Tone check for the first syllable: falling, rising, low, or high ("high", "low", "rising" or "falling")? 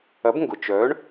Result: rising